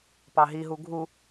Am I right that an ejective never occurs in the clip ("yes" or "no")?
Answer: yes